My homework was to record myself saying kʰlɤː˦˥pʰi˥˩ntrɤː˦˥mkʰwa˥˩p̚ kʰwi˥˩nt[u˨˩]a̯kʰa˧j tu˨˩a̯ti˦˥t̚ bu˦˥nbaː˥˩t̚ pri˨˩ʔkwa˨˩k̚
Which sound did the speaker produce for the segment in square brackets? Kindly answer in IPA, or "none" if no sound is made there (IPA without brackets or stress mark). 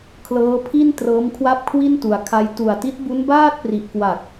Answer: u˩˦